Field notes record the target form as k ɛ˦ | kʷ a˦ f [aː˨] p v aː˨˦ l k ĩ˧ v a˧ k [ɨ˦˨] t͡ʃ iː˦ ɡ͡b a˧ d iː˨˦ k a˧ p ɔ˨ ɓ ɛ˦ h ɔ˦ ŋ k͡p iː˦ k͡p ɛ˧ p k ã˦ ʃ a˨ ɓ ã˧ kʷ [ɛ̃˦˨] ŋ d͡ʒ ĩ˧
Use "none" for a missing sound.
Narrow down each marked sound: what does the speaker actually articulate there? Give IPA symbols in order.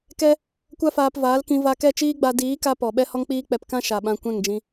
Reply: aː˧, ɛ˦˨, ɛ̃˦˨

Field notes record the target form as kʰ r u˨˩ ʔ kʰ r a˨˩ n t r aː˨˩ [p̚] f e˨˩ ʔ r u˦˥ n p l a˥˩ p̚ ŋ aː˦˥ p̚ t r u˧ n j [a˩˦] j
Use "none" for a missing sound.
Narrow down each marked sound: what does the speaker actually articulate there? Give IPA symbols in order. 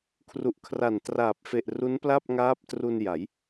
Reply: p̚, a˩˦

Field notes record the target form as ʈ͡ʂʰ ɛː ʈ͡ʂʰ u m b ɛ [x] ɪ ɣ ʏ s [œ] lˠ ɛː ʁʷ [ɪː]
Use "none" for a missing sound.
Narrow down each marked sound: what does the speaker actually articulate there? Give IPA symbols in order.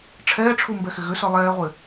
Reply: x, œ, ɪː

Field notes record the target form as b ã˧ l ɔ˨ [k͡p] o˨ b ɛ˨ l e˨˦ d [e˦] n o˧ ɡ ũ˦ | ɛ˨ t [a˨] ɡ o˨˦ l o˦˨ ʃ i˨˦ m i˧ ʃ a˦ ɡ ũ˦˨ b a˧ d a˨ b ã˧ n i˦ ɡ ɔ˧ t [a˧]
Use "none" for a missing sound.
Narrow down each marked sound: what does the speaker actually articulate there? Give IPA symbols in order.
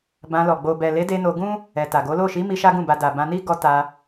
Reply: ɡ͡b, e˧, a˨, a˧

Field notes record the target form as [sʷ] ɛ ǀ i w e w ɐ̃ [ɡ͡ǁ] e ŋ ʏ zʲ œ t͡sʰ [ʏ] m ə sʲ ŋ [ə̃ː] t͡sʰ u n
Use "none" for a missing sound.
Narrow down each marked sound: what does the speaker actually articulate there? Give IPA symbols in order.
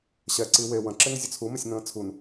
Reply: ɕ, ǁ, u, ə̃ː

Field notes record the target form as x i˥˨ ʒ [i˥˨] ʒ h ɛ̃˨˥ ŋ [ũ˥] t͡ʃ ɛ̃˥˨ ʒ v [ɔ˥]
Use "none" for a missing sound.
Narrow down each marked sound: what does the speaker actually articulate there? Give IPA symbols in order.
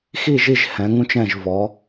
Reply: i˥˨, ũ˥, ɔ˨˥

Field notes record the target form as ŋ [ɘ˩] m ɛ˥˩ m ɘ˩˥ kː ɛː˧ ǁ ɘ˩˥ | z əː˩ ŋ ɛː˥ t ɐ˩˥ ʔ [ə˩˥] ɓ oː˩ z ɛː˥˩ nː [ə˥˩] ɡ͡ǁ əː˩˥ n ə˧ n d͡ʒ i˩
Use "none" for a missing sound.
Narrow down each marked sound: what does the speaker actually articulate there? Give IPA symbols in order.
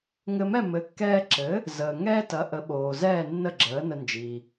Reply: ɘ˧, ə˩˥, ə˥˩

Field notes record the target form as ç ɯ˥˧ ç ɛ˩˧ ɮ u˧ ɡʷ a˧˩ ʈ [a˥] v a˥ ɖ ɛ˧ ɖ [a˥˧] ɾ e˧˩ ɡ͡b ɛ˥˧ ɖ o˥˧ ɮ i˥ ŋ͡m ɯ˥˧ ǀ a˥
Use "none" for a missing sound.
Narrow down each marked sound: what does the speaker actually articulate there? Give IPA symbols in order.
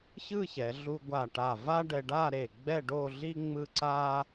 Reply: a˧˩, a˥˧

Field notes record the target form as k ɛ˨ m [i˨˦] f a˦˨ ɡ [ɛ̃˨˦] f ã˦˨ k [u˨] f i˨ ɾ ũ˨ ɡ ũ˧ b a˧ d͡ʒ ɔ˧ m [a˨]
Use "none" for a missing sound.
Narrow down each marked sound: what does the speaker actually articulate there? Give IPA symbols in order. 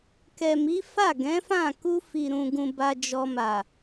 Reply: i˨˦, ɛ̃˨˦, u˧, a˨

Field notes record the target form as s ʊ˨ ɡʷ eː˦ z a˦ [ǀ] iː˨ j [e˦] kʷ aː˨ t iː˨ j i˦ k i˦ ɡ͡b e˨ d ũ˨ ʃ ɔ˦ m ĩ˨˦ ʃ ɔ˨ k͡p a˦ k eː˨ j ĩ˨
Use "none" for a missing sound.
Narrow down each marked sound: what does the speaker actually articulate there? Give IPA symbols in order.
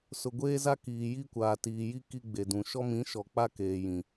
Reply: k, i˦

